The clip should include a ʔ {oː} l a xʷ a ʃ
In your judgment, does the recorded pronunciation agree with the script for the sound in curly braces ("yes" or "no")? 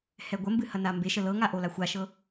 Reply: no